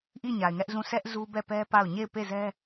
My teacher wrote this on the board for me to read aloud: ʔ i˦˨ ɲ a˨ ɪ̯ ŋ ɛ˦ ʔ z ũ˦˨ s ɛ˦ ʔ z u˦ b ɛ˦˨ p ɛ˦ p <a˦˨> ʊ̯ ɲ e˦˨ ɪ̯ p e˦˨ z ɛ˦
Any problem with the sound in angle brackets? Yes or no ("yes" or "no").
no